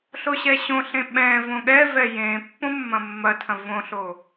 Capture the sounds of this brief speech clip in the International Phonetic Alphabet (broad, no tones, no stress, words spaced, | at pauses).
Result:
ɬoɕɛɕõɬẽ ɓɛ̃ võɠɛvɛ jẽ pːõmːɐ̃mːɐtʰɐ̃ võɬo